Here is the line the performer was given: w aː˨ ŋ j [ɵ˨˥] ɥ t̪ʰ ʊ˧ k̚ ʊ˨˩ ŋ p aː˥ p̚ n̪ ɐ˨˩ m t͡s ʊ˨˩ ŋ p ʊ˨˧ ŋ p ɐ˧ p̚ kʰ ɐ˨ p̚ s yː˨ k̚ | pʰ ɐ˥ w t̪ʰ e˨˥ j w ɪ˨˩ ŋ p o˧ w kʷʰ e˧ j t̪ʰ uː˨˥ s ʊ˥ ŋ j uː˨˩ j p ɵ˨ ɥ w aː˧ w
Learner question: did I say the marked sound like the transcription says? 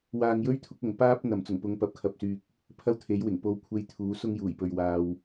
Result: no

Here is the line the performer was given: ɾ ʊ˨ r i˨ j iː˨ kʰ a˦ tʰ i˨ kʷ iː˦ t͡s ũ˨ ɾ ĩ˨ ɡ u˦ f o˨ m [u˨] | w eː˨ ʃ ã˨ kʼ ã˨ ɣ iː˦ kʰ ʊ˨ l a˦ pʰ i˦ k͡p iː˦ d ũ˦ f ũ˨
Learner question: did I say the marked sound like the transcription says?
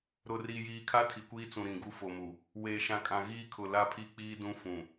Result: yes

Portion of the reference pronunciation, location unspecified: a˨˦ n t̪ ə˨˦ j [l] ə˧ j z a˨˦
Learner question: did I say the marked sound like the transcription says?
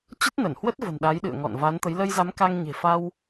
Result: yes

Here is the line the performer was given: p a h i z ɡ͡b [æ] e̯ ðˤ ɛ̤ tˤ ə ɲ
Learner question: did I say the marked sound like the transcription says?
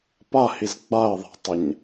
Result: no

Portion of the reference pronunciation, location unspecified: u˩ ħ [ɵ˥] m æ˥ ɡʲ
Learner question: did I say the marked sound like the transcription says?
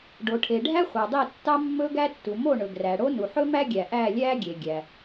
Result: yes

